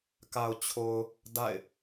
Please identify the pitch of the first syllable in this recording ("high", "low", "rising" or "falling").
low